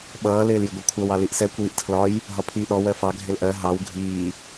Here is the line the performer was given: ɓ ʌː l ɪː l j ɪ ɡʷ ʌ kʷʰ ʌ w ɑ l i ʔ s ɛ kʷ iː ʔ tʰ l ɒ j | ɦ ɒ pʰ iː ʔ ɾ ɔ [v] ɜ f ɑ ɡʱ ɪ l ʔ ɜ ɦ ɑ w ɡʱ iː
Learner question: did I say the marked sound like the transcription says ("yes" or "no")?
no